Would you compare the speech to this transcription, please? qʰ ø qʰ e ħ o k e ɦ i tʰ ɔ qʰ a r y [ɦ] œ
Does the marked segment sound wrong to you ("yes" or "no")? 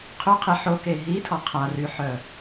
yes